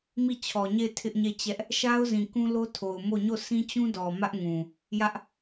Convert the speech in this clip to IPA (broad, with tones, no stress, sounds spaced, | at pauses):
m i˦˨ t͡ɕʰ ɔ˨ ɲ e˦˨ ɪ̯ tʰ ɪ˦ ʔ ɲ e˦˨ t͡ɕ ɛ˦ ʔ | ʃ a˦ ʊ̯ z ĩ˨ k ũ˦ l o˦ tʰ o˨ ʊ̯ m o˦˨ ɲ o˦˨ sʰ ĩ˦ t͡ɕ ũ˦ d ɔ˨ m ä˦ ʔ ŋ ũ˨ | j ä˦ ʔ